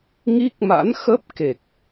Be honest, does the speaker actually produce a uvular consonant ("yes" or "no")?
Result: no